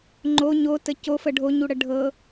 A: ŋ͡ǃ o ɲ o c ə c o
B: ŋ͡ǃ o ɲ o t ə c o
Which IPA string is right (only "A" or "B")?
B